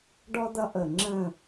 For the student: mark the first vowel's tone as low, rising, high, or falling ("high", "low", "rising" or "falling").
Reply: high